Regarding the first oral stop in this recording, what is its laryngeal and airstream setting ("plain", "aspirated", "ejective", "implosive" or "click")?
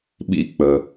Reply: implosive